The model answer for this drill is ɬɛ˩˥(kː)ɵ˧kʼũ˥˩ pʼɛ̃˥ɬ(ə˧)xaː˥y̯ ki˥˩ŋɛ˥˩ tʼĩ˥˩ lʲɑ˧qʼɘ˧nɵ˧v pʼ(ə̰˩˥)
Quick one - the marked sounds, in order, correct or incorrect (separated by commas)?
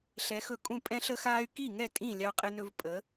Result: incorrect, incorrect, incorrect